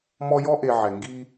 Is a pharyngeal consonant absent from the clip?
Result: no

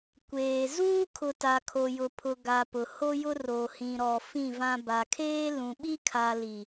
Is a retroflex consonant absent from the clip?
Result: yes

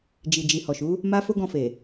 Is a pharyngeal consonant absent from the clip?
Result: yes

